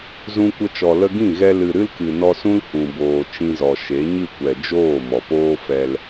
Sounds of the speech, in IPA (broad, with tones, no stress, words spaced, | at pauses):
zũ˧kʷə˧t͡ʃɔ˨ lə˧ɡĩ˦˨ɣɛ˧ lɨ˨ ɾɨ˦lkɨ˨ nɔ˧sũ˦l hũ˨boː˨ t͡ʃĩ˧zɔ˨ ʃe˨˦ɲɨ˦˨kʷɛ˨ d͡ʒoː˦˨mɔ˨poː˦ fɛ˧l